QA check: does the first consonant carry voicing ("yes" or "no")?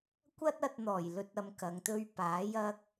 no